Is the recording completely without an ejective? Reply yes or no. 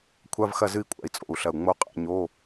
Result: no